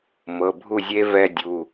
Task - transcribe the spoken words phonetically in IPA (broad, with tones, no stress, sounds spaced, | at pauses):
m ɤ˩˧˩ bʱ u˥˩ zʲ e˦˥ v ɛ˥˧ dʲ u˩˧˩